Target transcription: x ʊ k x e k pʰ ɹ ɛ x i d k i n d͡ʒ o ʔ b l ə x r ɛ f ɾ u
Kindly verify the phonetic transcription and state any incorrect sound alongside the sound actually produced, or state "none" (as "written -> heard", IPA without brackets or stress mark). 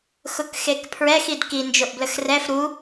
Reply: none